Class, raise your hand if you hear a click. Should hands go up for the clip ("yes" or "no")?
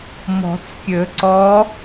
yes